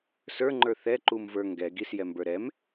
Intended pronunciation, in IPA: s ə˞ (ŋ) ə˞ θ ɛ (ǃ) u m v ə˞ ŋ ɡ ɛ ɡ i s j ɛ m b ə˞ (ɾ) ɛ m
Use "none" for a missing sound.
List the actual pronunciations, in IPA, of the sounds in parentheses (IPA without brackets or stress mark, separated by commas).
ŋ͡ǃ, ǃ, ɾ